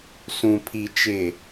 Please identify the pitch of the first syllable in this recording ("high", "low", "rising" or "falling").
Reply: low